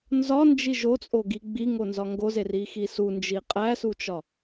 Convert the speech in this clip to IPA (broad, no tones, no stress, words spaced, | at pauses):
nzɒnd͡ʒi ʒot͡sʼoɡi ɡ͡biŋonzɒ ŋɡozerixi sund͡ʒi qʼæsut͡ʃɒ